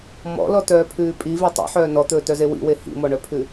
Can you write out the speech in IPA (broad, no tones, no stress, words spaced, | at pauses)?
mɔ̰lɔtœːpʰʉː pʼive tˤḭħœː nɔt̪ɵːtœze wḭwe hḭmɔɳœpʰʉ